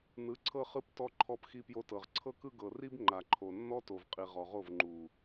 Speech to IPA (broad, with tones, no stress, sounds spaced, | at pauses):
n ɯ˨˦ ǀʰ ɤ˦ χ ɯ˦ p t ɔ˧ ǃʰ ɔ˧ p x i˧ p j o˧ t ɤ˨ ʁ ǀʰ ɤ˧ k ɯ˧ ɡ ɤ˨ r i˦ b ŋ͡ǃ a˨ ǃʰ o˨ nː ɔ˦ t o˨ v qʼ i˨ ʁ ɔ˨ ʁ o˦˨ v ŋ͡ǃ u˨